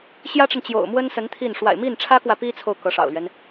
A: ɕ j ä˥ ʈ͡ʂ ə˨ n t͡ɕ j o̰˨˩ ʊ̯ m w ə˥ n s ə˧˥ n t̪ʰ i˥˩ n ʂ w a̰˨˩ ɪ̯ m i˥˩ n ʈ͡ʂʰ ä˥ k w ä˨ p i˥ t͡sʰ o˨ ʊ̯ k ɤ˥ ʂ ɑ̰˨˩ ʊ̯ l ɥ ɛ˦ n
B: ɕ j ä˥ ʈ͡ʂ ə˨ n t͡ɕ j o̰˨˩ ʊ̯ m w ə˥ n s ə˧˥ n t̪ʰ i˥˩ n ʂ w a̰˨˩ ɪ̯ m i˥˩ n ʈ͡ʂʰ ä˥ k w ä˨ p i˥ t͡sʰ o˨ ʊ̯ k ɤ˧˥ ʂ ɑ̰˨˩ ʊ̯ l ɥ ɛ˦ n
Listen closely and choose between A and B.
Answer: B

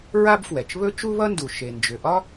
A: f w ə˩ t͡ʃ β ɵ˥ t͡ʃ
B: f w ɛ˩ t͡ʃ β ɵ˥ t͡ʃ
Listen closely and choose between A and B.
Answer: B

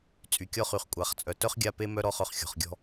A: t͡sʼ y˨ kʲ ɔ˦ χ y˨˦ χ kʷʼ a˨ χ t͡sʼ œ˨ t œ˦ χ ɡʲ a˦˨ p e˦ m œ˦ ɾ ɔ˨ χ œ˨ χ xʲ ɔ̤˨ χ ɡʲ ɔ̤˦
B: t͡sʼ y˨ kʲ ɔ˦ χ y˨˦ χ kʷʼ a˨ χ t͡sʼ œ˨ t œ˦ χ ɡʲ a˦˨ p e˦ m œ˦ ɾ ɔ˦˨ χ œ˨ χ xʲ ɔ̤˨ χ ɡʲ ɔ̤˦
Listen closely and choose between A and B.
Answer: B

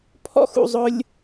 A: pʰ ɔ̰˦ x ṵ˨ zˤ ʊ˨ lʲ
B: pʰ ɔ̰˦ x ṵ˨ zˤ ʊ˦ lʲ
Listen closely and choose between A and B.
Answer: B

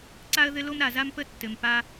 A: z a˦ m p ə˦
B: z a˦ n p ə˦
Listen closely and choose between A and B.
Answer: A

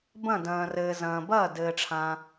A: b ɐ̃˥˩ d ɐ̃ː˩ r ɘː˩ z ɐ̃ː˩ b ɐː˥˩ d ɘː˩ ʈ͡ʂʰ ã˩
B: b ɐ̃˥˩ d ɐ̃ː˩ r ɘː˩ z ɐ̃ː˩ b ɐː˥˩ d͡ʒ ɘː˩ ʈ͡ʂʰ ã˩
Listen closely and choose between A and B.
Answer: A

